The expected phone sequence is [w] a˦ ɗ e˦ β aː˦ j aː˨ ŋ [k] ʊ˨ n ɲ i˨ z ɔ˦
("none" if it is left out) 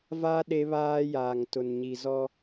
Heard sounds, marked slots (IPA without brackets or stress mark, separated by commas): v, t